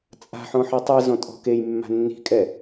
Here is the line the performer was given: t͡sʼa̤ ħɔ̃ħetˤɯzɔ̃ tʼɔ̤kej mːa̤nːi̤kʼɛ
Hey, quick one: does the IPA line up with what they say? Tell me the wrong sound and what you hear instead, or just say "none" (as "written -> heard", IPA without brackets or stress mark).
none